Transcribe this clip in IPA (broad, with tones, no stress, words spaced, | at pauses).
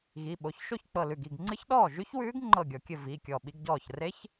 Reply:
ɣi˩˧˩ɓo˩˧˩çʃo˥˨ç k͡pɤ˧˩lʉ˧˩ɡi˥˨ɡ ŋ͡ǀɨ˦˥çɗɔː˥˨ʒʉ˦˥çwʉː˦˥ɡ ŋ͡ǃɤ˥˨ɡʲɔ˧kʲɘ˥˨ vi˩˧˩kʲɔ˧˩ ɓi˧ɡɟɔː˧˩çre˦˥ç